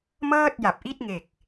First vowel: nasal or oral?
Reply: oral